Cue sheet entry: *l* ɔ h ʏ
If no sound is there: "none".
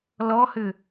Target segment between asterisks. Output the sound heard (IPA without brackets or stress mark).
l